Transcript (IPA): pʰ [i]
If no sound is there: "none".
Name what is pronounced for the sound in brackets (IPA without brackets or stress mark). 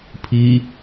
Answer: i